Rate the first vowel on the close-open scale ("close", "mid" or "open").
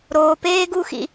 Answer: mid